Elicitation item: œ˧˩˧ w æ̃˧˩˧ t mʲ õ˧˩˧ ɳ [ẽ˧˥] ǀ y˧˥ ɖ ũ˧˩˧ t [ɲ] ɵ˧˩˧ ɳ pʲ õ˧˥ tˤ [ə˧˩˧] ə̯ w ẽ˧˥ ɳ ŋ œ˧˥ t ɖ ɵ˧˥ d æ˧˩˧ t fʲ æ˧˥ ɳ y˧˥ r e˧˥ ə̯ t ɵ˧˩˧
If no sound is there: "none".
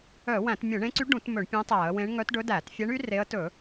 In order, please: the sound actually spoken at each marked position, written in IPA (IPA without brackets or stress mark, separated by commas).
ẽ˧˥, m, æ˧˩˧